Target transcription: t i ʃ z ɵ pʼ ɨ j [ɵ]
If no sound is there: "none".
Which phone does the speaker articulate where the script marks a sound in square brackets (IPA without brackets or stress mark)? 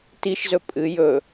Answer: ɵ